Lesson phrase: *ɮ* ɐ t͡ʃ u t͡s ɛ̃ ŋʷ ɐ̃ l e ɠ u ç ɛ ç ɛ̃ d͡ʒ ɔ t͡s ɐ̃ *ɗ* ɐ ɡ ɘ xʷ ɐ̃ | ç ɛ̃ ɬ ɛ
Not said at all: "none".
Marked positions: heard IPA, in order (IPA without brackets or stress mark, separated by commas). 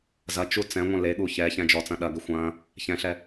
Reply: z, ɗ